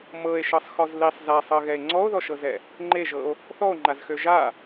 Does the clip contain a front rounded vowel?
yes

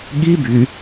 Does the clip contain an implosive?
yes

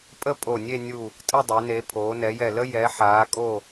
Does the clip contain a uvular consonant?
no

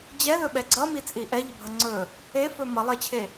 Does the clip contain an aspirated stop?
yes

